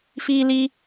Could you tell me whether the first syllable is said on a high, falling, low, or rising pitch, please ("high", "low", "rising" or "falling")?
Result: high